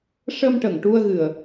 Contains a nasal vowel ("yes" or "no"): no